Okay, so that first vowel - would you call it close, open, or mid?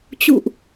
close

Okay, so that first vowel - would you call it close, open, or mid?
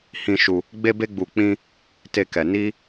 close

